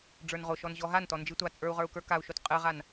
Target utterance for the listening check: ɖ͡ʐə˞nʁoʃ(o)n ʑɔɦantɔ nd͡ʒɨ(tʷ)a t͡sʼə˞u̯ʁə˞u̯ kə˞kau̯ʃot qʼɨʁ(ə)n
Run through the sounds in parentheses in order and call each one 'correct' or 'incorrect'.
incorrect: ɔ, correct, incorrect: a

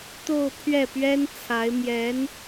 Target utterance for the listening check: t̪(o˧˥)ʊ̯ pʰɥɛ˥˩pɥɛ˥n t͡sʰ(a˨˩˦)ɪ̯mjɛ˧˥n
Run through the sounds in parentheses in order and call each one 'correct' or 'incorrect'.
incorrect: o˥˧, incorrect: a˧˥

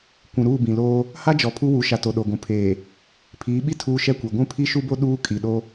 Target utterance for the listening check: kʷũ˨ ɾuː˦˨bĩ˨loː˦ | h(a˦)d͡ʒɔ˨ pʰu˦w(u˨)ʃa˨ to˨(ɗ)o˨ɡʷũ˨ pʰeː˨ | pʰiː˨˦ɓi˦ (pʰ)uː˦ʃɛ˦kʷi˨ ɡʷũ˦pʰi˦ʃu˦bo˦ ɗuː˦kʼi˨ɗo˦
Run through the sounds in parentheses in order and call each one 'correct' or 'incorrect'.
correct, incorrect: u˨˦, correct, incorrect: tʰ

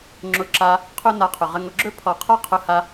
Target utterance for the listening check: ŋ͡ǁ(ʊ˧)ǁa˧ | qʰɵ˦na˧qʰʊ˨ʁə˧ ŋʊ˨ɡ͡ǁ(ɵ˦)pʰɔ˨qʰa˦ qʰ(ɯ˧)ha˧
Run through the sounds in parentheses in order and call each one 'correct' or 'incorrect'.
correct, correct, incorrect: ʊ˧

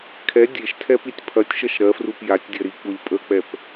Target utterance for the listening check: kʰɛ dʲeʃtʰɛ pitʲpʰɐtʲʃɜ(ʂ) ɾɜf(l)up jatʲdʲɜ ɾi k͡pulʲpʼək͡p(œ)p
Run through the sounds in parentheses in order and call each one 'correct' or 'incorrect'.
incorrect: ʃ, incorrect: r, incorrect: ɛ

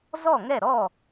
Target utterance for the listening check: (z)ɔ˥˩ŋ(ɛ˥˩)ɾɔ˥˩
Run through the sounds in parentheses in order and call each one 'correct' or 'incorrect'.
correct, correct

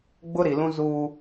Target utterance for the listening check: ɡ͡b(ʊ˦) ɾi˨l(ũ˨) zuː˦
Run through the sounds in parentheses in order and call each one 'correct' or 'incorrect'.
correct, incorrect: ũ˦

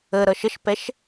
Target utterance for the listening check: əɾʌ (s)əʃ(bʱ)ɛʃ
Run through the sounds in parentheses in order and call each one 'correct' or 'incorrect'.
incorrect: ʃ, incorrect: p

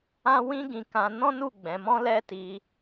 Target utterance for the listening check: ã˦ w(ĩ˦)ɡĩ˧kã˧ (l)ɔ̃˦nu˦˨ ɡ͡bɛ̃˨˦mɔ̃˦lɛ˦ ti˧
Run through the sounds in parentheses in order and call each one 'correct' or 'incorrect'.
correct, incorrect: n

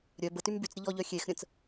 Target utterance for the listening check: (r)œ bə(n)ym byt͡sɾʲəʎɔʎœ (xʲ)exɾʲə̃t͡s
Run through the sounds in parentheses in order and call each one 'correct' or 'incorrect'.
incorrect: ɾʲ, incorrect: t, correct

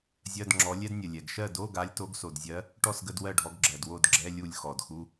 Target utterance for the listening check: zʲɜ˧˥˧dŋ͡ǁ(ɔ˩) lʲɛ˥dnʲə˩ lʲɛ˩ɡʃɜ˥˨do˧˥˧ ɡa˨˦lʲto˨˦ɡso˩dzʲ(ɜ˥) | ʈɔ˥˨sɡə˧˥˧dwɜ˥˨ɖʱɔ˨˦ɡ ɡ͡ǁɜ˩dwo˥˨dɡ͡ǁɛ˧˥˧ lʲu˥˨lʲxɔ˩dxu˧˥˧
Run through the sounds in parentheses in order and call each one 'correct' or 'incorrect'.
incorrect: ɔ˨˦, incorrect: ɜ˨˦

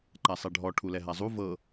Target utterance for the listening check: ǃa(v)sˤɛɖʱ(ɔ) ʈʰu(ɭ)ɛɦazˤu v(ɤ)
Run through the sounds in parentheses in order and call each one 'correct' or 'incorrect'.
incorrect: none, correct, incorrect: l, correct

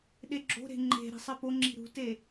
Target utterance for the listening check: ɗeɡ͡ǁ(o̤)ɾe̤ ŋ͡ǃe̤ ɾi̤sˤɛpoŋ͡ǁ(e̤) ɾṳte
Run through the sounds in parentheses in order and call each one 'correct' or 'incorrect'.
correct, incorrect: i̤

